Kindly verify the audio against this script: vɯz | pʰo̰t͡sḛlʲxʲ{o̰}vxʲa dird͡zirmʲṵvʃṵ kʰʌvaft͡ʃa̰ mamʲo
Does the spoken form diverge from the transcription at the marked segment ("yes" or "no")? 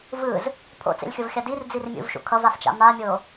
yes